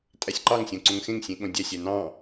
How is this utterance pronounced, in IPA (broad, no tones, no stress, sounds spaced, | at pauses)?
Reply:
tʼ æ sʲ ǃ ɑ ŋ sʲ õ ǀ õ ŋ x ẽ ŋ sʲ ẽ ɠ õ dʲ æ sʲ æ n ɑ̃